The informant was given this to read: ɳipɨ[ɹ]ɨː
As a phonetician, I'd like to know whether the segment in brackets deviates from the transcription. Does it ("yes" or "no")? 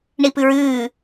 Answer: no